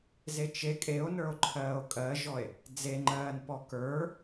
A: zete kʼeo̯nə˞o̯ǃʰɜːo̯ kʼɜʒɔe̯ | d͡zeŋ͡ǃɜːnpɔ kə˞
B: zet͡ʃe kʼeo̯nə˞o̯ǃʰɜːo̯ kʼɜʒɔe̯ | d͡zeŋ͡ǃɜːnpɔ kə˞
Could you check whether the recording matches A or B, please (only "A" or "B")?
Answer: B